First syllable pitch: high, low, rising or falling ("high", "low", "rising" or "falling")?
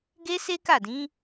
high